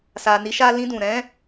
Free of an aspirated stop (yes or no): yes